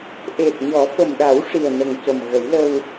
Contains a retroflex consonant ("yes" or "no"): yes